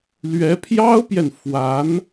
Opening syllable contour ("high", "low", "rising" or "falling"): rising